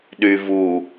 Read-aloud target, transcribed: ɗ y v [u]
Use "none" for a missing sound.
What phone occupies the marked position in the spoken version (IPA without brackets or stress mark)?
u